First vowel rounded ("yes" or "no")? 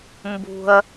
yes